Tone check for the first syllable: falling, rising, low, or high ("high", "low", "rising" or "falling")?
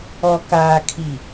low